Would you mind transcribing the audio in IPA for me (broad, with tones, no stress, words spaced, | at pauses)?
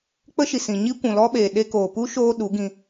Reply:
k͡pə˦ʃi˨sĩ˨ ɲi˦kʷũ˨lɔ˦ɓeː˨ ɗe˧koː˨pu˦ ʃoː˦ɗu˨˦ɡĩ˧